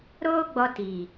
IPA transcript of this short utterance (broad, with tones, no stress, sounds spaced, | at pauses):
ɾ oː˦ ɡ͡b ɔ˧ t iː˨